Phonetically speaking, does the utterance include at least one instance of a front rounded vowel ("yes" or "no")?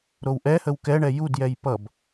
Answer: no